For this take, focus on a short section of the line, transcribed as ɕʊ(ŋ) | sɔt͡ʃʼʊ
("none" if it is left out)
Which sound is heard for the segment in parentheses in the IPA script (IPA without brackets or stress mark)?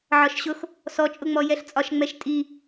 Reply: x